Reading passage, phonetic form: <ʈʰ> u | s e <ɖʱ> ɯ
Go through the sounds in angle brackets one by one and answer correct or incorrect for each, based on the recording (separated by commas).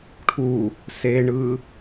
correct, incorrect